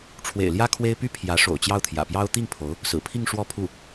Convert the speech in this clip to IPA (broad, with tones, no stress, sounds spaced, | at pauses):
ʈ͡ʂʰ w ḛ˨˩ ɪ̯ l j ä˥ kʰ w e˥ ɪ̯ p y˥ pʰ j ä˧˥ ʂ o̰˨˩ ʊ̯ t͡ɕ j ɑ˥˩ ʊ̯ t̪ʰ j ä̰˨˩ p j ɑ˥ ʊ̯ t̪ i˥˩ ŋ pʰ o˧˥ ʊ̯ | s ɹ̩˨˩ pʰ i˥˧ ŋ ʂ w ɔ˥˧ pʰ u˥˩